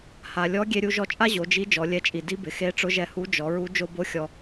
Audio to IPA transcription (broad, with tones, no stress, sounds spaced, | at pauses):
h a˩ lʲ ɔ˧˥ ɡʲ e˧ ɾʲ u˧ ʒ ɔ˧ t͡ʃʼ a˥ ʑ o˩˧ d͡ʒ i˧˥ d͡ʒ ɔ˩˧ lʲ ɛ˧˥ t͡ʃʼ i˩ d i˧˥ b ɪ˩ x e˧˥ ʈ͡ʂ ʊ˧˥ ʒ ɛ˧˥ h u˧˥ d͡ʒ ɔ˩˧ ɹ u˧˥ d͡ʒ o˥ b o˥ xʲ ɔ˧